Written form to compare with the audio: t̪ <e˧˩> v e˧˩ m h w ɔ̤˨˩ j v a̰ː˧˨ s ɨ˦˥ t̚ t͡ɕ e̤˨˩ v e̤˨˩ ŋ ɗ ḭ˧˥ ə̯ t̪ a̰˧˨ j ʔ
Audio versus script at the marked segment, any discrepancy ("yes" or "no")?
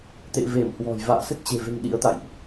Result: yes